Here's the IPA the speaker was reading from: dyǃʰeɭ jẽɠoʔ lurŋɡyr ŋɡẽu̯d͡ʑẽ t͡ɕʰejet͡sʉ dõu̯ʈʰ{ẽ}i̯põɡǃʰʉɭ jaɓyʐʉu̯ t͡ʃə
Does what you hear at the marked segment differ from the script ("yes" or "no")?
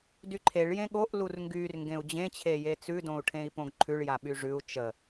no